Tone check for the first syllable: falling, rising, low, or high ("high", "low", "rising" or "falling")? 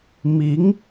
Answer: rising